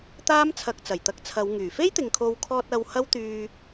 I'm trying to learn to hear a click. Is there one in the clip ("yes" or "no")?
no